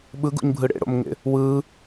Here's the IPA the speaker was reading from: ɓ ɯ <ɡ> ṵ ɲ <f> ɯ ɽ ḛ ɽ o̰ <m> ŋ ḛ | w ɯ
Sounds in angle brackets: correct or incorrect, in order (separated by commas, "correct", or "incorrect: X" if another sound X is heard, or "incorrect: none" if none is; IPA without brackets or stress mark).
correct, incorrect: bʱ, correct